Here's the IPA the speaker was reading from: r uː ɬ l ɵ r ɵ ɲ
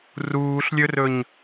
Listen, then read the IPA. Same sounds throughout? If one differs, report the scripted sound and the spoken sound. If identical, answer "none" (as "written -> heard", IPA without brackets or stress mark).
l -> lʲ